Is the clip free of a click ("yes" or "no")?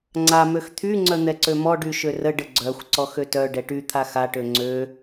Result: no